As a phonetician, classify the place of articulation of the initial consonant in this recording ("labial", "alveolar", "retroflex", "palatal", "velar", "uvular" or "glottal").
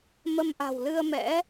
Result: labial